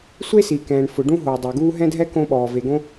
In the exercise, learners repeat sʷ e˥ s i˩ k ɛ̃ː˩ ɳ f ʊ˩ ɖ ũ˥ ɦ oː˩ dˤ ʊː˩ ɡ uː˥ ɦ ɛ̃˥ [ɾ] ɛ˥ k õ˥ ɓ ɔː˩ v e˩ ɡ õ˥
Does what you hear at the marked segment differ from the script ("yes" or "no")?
yes